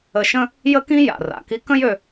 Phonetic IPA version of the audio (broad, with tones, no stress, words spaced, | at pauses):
ə˧ʃə̃˥ | jə˥kĩ˥ ja̰˩ra̰˩ki˧ kə̃˥jø˧